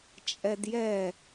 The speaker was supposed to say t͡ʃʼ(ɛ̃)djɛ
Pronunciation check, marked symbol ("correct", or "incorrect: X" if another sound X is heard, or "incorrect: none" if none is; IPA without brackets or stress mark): incorrect: ɛ